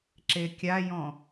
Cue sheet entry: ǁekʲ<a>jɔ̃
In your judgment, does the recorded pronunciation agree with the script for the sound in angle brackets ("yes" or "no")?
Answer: yes